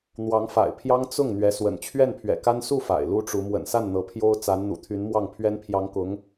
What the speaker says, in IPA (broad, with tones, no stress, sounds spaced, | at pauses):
n̪ w ɑ˧˥ ŋ f a̰˨˩ ɪ̯ pʰ j ɑ˥ ŋ t͡s ʊ˥˩ ŋ n̪ ɥ ɛ˧˥ s w ə̰˨˩ n t͡ɕʰ ɥ ɛ˥˩ n pʰ ɥ ɛ̰˨˩ k a˥ n s u˥˩ f a̰˨˩ ɪ̯ l u˥ ʈ͡ʂ u˧˥ m w ə̰˨˩ n s a˥˩ n n̪ ɤ˧˥ pʰ j o˥ ʊ̯ t͡s a˧˥ n n̪ ṵ˨˩ t̪ʰ y˧˥ n m w ɑ˥˩ ŋ pʰ ɥ ɛ˥ n pʰ j ɑ˧˥ ŋ k ʊ˧˥ ŋ